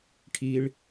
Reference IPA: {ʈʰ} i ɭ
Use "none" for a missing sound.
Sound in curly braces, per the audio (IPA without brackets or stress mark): ʈʰ